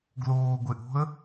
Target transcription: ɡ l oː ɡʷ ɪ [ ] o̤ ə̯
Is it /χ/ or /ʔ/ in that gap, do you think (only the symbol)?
ʔ